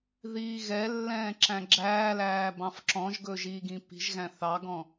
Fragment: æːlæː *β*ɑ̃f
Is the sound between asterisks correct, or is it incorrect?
incorrect: b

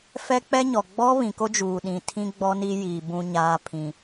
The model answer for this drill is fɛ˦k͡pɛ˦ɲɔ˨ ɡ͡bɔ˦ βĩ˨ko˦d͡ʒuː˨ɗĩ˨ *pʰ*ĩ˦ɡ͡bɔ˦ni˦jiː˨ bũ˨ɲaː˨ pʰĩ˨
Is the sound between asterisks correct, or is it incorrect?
incorrect: tʰ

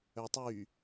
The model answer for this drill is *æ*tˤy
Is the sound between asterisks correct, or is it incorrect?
incorrect: œ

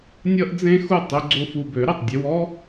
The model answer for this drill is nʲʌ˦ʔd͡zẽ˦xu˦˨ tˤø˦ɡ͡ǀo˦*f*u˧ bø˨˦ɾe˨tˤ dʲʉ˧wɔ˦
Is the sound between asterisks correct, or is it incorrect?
correct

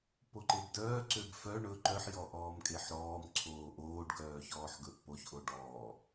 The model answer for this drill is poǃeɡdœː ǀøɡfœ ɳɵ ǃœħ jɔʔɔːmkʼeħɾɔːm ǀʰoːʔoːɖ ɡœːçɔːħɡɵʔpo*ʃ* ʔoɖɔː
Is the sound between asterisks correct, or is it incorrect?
incorrect: ç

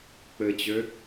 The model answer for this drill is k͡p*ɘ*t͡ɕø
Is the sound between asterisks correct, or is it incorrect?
correct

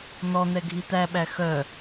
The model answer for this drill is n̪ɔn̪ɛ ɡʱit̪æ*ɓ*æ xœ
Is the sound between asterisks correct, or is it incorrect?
correct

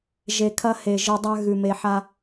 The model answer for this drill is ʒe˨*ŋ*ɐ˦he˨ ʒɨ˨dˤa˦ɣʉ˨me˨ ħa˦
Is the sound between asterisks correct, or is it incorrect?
incorrect: kʰ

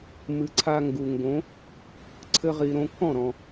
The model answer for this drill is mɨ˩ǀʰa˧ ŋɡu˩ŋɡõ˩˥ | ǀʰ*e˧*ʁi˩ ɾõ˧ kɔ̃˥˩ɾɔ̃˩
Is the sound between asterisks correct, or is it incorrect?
incorrect: ɘ˧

